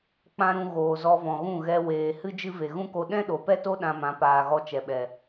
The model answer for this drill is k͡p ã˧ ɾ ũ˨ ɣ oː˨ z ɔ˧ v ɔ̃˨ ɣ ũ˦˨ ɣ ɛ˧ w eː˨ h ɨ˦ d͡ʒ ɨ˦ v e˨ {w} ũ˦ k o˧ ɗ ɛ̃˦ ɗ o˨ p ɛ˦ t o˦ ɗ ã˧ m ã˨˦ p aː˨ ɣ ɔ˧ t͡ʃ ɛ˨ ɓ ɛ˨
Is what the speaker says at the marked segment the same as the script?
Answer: no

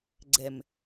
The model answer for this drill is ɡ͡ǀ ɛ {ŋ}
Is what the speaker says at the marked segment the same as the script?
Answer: no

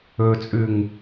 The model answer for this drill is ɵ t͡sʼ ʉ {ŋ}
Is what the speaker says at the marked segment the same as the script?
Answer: yes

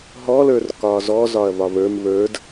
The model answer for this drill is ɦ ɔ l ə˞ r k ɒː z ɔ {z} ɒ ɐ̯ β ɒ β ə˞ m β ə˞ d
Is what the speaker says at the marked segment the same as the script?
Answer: yes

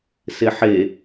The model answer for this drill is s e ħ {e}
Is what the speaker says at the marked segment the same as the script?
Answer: yes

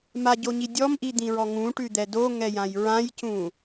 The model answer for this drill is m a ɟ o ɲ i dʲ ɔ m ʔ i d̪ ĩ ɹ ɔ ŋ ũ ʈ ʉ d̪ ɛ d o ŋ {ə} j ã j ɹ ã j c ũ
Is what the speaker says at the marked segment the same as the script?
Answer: no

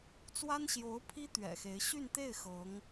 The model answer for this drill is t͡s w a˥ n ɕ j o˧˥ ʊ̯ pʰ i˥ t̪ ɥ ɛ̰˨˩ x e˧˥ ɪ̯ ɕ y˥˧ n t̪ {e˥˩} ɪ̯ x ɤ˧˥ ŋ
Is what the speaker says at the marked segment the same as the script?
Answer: yes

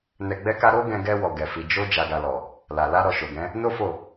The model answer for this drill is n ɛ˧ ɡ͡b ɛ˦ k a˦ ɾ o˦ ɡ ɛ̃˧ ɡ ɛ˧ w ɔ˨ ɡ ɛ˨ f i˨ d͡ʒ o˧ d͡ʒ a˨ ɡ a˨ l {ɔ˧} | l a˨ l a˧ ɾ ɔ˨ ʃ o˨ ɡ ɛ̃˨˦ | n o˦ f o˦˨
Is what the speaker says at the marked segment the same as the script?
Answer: no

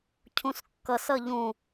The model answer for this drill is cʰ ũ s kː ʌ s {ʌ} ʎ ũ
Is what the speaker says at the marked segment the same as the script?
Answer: yes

